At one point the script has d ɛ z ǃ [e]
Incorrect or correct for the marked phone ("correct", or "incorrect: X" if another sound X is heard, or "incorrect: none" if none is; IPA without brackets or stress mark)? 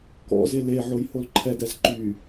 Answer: incorrect: y